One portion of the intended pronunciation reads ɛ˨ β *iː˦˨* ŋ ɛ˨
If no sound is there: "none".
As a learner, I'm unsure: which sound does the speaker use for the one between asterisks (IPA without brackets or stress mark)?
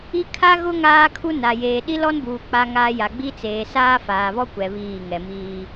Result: iː˦˨